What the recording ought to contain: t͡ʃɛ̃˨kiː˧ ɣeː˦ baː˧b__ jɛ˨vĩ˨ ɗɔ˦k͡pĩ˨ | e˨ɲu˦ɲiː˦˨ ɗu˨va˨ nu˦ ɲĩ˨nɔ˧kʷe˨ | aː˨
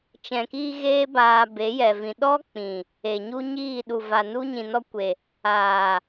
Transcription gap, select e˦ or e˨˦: e˨˦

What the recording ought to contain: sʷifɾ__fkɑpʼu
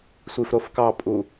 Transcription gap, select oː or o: o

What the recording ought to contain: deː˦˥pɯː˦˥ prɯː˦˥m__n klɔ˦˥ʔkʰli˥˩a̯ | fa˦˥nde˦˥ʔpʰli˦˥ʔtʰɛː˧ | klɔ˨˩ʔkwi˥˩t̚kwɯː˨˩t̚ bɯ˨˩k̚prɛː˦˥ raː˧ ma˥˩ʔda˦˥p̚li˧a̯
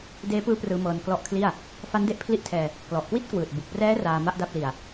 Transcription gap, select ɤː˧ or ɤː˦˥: ɤː˧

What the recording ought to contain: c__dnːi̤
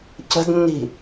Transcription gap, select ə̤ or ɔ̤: ə̤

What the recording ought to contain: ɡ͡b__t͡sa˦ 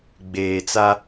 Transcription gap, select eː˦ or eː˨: eː˨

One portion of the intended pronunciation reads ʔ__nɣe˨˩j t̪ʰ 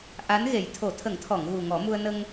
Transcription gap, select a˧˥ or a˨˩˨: a˧˥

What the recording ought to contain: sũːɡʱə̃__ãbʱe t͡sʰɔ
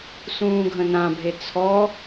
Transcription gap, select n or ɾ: n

